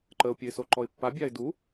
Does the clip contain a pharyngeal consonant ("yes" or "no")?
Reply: no